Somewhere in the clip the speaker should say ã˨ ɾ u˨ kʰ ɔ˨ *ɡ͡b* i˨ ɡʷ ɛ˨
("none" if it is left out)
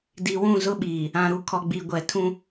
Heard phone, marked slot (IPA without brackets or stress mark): ɡ͡b